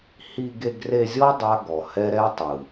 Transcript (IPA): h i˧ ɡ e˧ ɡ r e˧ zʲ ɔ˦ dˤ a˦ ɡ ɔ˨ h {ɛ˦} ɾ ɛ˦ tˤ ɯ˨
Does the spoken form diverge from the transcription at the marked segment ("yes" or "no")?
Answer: no